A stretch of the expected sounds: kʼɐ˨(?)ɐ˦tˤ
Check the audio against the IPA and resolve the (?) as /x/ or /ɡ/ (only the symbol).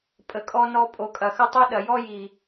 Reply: x